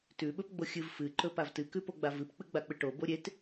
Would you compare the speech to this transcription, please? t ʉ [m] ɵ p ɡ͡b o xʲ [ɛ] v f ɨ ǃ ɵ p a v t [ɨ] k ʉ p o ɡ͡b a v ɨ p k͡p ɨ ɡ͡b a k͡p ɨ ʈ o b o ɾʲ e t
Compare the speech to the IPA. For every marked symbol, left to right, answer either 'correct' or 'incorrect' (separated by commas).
incorrect, incorrect, correct